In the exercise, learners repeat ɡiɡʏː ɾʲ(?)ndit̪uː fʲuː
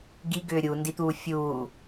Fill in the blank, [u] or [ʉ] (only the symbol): u